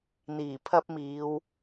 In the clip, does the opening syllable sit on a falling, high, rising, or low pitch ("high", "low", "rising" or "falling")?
low